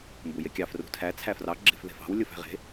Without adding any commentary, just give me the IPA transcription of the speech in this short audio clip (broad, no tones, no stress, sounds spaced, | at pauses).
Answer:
m b u j e kʲ ɑ f r ṳ tʰ æ t͡sʰ æ f r ɑ ɡ͡ǁ e̤ f ð e̤ f ɑ̤ w lʲ o f æ̤ ʁ e̤